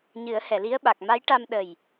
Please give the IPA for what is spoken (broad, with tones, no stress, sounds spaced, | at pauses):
ɲ ɨ˨˩˦ ə̯ h ɛ˨˩˨ l i˧˥ ə̯ ɓ a˨˩ k̚ m a˧˥ j ʈ a˧ m ɗ ə˨˩ j